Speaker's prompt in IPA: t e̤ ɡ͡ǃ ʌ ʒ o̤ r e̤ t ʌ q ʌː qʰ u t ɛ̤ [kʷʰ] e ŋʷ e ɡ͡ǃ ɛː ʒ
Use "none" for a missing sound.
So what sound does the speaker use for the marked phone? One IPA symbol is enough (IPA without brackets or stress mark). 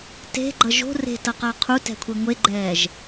kʷʰ